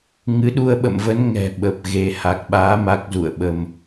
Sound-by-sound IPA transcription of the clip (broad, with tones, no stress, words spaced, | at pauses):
ŋɨ˨˦ɗu˧ə̯ɓə̰˧˨mvə˨˦n ŋɛ̤˨˩ ɓə˨˩p̚ɣe˧ ha˨˩k̚ɓaː˨˦ ma˦˥k̚zṵ˧˨ə̯ɓə˧m